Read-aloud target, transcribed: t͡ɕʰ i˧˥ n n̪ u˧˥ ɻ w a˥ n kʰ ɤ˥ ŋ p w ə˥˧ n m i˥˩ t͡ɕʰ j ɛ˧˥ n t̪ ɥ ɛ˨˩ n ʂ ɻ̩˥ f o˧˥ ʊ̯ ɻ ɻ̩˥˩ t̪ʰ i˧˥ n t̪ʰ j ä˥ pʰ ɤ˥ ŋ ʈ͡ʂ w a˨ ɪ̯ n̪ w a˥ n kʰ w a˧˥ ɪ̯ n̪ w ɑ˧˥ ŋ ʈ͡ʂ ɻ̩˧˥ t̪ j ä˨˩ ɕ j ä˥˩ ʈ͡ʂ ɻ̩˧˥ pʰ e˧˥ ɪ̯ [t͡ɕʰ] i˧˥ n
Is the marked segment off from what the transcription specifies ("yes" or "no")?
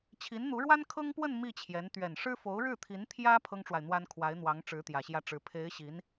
yes